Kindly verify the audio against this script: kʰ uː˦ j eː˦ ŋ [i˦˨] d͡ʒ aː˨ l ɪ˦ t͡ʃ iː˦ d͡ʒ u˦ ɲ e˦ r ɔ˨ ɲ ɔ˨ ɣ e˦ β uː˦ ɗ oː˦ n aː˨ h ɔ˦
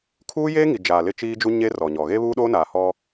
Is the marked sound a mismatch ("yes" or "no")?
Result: yes